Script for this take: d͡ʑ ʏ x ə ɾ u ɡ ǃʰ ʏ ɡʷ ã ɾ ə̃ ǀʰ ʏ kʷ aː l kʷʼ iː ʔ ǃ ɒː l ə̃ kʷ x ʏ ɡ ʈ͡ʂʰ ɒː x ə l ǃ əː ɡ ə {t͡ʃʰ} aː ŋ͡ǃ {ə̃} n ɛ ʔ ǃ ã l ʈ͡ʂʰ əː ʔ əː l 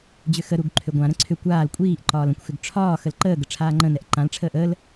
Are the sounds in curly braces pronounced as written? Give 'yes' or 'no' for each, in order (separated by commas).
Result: no, yes